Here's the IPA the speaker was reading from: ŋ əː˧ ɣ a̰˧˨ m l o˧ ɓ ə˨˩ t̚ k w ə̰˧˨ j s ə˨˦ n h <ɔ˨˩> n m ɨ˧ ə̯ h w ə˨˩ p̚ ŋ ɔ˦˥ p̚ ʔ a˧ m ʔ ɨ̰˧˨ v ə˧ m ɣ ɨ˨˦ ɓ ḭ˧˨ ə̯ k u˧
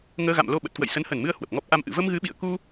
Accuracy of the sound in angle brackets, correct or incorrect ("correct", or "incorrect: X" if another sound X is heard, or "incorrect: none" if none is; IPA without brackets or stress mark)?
incorrect: ə˨˩